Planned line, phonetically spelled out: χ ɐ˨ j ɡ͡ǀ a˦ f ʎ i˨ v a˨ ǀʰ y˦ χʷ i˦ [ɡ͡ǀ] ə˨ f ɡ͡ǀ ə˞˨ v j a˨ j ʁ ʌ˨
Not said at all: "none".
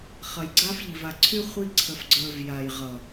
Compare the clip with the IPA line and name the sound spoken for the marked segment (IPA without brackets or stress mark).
ǀʰ